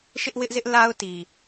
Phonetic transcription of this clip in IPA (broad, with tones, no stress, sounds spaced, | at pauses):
ʃ ɪ˦ ʔ w ɪ˦ ʔ z ɪ˦ ʔ l a˦ ʊ̯ t i˨